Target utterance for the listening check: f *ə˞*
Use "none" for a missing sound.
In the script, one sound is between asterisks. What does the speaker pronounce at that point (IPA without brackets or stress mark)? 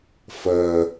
ɐ